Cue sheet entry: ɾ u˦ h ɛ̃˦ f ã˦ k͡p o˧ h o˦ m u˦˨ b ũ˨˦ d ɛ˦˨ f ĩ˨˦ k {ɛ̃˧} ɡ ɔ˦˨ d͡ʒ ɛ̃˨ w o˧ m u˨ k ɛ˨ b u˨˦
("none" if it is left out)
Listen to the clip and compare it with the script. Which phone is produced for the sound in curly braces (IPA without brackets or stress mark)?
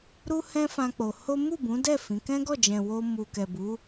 ɛ̃˦